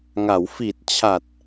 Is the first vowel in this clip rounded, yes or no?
no